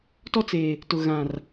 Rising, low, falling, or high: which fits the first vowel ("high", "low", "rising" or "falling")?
high